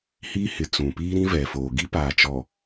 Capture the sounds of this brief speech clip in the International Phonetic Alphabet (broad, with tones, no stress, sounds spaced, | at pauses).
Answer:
h iː˦ h ɪ˨ t͡s ũ˨ p iː˦ ɾ ĩ˦ v ɛ˨ f oː˨ ɡ i˦ p aː˨ t͡ʃ ɔ˨